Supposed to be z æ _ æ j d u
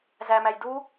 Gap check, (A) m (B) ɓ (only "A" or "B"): A